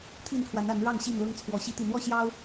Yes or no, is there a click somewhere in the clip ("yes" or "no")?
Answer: no